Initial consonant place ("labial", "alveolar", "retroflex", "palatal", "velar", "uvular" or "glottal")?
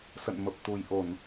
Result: alveolar